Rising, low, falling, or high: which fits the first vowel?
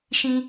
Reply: high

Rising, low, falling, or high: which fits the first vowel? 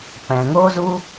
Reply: low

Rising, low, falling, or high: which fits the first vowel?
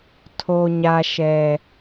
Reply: high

